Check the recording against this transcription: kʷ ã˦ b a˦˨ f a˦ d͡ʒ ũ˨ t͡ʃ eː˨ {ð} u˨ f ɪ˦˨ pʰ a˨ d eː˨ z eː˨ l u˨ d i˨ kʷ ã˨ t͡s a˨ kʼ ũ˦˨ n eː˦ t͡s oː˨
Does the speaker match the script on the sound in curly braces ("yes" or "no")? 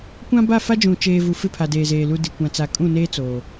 no